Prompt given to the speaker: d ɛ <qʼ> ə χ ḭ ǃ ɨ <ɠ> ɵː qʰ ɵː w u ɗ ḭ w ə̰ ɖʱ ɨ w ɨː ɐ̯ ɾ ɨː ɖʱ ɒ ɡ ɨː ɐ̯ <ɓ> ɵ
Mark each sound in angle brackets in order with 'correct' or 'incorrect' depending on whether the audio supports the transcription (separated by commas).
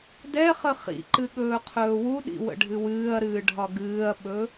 incorrect, correct, correct